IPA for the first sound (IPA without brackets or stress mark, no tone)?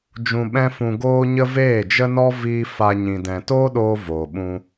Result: d͡ʒ